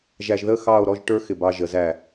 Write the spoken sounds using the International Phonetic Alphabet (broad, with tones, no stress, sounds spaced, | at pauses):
ʒ æ˧ ʒ ð ə˥˧ x ɑ˥˧ o̯ ɾ ɔ˥˧ ʒ ʈ ə˞˥ x ɪ˧˩ b ɑ˧ ʒ ə˩˧ z æ˧˩